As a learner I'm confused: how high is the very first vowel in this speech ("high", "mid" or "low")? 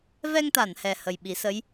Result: mid